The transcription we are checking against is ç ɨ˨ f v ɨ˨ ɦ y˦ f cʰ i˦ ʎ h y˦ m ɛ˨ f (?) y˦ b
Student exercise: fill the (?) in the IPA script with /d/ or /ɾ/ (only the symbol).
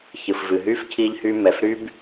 ɾ